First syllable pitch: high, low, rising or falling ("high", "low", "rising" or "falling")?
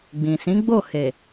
low